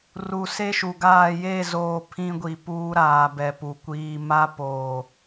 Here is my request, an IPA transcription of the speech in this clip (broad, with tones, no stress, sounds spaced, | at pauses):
r u˨ s e˦ ʃ u˨ ɡ aː˦˨ j e˦˨ z oː˨ pʰ ĩ˦ ɡʷ i˨ p uː˦ ɾ aː˨ b ɛ˨ p u˨ kʷ iː˨ m a˦ p oː˨